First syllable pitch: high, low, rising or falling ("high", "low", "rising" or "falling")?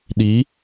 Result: rising